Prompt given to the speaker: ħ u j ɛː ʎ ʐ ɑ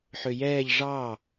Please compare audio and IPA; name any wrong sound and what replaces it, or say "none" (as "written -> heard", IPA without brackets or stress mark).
u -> ø